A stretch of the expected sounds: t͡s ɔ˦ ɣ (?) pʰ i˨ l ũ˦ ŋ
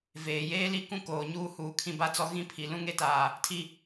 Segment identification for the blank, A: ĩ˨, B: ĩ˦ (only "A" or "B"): B